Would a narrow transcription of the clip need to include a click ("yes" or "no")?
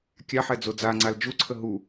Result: yes